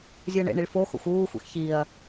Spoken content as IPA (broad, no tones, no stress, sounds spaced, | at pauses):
zʲ u ɐ̯ ɳ ḛ ɳ i ɭ f o x o̰ xʷ uː xʷ ḛ x ç i ɐ̯